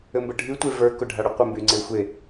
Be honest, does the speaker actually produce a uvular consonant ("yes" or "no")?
yes